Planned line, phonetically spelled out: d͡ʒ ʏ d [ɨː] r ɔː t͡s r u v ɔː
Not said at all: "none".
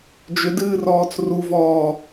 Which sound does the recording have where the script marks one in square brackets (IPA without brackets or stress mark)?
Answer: ɨː